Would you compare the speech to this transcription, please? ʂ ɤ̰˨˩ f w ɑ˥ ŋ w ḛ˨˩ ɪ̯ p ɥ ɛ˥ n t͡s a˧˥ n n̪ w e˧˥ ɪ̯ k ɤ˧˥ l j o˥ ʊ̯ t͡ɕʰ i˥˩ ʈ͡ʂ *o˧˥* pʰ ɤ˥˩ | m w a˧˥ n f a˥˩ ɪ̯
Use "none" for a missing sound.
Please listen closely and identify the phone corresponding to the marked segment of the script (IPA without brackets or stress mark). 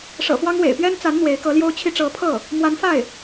ɤ˧˥